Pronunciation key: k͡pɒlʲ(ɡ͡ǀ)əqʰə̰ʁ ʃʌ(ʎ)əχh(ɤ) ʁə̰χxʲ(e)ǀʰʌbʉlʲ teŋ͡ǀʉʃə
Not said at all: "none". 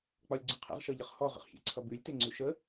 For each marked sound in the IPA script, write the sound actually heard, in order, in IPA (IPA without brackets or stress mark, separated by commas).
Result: ɡ͡ǀ, ʎ, ɔ, ḛ